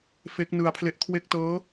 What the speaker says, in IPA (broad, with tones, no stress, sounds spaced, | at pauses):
f e˦˥ k̚ n ɯ˧ a̯ pʰ l e˦˥ ʔ kʰ w e˦˥ k̚ t ɤː˦˥